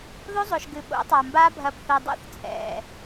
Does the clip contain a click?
no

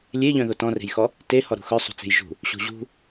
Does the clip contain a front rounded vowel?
yes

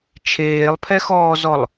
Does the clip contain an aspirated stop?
yes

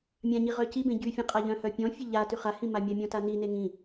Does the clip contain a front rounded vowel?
yes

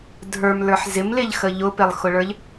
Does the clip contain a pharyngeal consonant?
yes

